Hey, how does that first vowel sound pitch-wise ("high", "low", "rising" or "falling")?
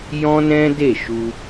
high